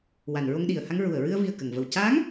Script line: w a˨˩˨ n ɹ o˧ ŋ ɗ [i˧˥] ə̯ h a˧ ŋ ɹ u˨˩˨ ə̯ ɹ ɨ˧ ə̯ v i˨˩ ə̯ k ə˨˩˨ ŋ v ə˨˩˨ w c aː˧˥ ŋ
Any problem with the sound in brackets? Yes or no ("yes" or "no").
yes